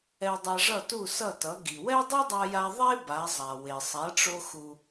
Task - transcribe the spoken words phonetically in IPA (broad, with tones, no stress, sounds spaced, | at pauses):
ɛ˧ dˤ a˧ ʐ ʌ˥˩ t u˥˩ s ʌ˥˩ t ʌ˩˥ ɡ i˩ w ɛ˥ dˤ i˥ dˤ a˧ j a˧ ðˤ e˥ b a˩˥ zˤ a˩ w e˩ sˤ a˩˥ ʈ͡ʂ o˧ x u˩